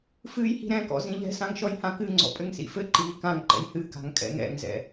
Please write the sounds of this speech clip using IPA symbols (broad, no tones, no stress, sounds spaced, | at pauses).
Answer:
f ɨː j h i̤ ɾ ɛ̃ k ɔ̰ z ĩ ʎ ɛ̤ s ã ŋ ʃ ɔ j h ã k ɨ ŋ͡ǀ ɔ̰ pʼ ɘ ŋ s ḭ f ɘ ǃ iː k ã ŋ ǃ ɛ̰ j h ɨ k a̤ ŋ kʼ ɛ̰ ŋ ɛ̰ ŋ z ɛ̰